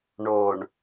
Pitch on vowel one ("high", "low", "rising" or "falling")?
low